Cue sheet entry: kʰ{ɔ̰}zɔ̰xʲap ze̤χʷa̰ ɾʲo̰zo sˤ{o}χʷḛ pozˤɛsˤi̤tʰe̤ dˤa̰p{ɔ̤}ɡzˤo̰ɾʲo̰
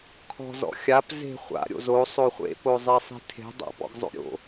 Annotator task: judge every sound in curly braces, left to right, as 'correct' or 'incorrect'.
incorrect: ɔ̤, correct, incorrect: ɔ̰

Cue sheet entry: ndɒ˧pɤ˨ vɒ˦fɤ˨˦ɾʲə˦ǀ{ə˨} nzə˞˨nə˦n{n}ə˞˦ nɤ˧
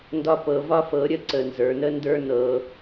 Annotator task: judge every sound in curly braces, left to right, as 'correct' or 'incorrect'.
correct, incorrect: d

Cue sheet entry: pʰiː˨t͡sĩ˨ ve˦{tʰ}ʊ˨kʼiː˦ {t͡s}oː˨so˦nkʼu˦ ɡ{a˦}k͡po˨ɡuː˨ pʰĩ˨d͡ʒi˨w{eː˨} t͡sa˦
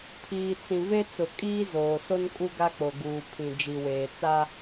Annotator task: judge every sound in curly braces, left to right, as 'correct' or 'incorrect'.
incorrect: t͡s, incorrect: z, correct, correct

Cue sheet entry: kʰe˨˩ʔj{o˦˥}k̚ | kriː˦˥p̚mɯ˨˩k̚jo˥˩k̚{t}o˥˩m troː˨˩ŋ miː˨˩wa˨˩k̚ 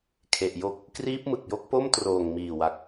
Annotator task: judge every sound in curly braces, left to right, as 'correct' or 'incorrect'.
correct, incorrect: p

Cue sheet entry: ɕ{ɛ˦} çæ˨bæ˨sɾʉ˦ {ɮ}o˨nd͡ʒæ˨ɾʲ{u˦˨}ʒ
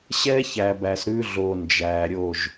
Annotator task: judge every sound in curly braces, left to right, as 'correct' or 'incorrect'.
correct, correct, incorrect: o˦˨

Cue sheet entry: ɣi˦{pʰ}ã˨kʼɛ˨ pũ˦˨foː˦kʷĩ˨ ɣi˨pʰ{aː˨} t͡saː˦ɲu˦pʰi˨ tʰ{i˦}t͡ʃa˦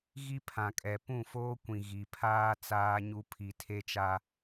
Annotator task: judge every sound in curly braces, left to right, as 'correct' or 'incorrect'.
correct, incorrect: aː˦, incorrect: e˦

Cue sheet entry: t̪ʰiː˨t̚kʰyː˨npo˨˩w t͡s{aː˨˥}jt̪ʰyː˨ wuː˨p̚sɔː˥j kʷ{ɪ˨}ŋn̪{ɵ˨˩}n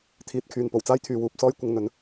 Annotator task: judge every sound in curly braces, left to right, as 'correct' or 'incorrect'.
incorrect: aː˥, incorrect: ɪ˧, incorrect: ɵ˨˥

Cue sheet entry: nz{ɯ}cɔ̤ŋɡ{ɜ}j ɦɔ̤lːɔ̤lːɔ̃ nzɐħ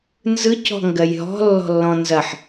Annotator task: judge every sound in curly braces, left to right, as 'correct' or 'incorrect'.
correct, correct

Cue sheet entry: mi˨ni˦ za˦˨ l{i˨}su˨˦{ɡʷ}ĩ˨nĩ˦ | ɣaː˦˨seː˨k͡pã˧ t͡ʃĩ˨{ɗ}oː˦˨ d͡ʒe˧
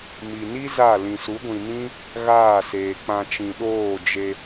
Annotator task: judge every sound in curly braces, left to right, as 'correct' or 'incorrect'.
incorrect: ĩ˨, correct, correct

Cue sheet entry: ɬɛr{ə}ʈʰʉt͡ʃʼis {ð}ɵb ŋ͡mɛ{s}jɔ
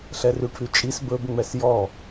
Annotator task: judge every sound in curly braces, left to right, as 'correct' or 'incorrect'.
incorrect: ʉ, incorrect: b, correct

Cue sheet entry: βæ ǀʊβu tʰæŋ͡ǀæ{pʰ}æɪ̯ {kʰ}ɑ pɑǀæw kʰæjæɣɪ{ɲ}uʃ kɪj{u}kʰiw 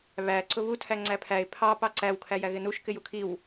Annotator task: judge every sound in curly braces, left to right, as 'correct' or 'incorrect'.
correct, incorrect: pʰ, incorrect: n, correct

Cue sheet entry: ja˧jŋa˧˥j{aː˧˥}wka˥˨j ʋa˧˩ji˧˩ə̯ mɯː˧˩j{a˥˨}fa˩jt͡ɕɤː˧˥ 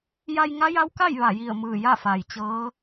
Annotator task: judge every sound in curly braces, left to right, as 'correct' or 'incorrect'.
incorrect: a˧˥, correct

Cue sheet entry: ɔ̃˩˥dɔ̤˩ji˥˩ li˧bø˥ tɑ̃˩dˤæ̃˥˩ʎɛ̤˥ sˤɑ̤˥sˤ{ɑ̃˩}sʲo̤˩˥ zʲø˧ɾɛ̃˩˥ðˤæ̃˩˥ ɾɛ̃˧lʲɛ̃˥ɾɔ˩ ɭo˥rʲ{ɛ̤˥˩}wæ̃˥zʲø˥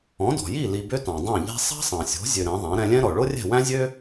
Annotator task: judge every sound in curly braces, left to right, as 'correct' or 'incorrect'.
correct, correct

